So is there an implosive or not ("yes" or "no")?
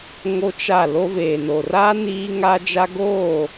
no